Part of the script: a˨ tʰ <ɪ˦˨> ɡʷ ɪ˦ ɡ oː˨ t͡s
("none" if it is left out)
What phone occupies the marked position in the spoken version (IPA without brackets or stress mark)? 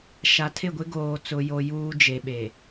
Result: ɪ˦˨